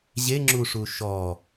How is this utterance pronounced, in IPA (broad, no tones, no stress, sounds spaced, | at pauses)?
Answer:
ʑ e ŋ͡ǁ u ʂ u ʃ ɔ